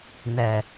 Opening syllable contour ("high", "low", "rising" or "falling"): low